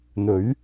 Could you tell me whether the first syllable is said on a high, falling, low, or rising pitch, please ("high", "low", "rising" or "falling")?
rising